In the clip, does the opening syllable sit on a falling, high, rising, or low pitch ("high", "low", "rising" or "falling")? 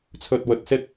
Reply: low